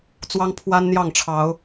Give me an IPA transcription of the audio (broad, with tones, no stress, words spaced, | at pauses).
t͡swɑ˦ŋpʰwa˦nn̪jɑ˥˨ŋʈ͡ʂʰɑ˨˦ʊ̯